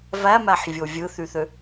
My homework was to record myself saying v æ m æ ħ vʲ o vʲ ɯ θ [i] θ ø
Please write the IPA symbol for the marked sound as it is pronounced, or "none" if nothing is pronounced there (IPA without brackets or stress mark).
y